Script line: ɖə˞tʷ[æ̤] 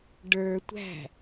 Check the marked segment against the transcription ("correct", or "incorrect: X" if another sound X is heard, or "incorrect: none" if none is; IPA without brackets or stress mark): correct